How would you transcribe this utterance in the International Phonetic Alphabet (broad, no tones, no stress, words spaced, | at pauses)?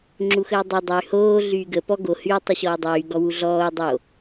ŋ͡ǁuxəːdˤo dˤəy̯ hoː ɮyːɡə pɔ ɡo hyu̯ tˤəɕɔːdˤyː ɡɔwuɮɔːu̯ dˤo